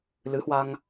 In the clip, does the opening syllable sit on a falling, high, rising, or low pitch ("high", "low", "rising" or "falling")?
rising